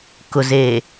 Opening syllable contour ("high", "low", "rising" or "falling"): low